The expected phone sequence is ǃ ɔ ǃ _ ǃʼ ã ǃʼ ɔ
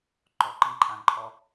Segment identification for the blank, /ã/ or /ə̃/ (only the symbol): ə̃